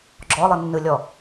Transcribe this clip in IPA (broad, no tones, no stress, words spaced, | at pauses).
ɡ͡ǁɔlˠɯnːɯlʲɔ